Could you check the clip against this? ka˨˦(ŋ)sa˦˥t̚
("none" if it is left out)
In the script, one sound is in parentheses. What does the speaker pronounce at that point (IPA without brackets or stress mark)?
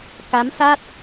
m